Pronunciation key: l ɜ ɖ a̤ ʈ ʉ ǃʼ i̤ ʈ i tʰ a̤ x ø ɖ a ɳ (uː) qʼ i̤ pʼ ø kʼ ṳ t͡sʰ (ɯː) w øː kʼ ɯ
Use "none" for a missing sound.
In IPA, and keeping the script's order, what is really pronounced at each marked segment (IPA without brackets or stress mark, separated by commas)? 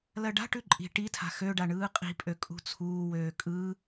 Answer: ɯː, uː